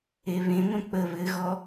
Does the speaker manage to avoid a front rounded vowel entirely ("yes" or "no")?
no